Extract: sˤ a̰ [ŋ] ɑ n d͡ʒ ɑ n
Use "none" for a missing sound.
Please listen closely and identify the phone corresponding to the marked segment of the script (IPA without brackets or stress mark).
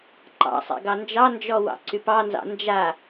ɡ